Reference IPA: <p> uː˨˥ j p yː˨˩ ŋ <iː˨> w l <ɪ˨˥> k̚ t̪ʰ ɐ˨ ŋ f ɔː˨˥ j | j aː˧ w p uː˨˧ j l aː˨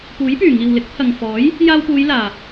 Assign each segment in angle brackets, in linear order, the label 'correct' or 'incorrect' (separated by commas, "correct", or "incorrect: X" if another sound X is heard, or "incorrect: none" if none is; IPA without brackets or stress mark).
correct, correct, correct